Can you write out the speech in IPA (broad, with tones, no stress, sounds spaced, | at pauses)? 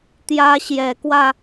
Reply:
t̪ j ä˦ ɕ j ɛ˨˦ k w ä˧